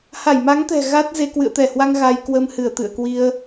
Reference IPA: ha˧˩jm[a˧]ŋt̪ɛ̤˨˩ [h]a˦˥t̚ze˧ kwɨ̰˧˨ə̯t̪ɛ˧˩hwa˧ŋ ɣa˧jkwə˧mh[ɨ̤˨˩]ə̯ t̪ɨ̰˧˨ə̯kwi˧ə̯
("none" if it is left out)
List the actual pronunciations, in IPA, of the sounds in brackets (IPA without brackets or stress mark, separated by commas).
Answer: a˨˦, ɣ, ɨ˧˩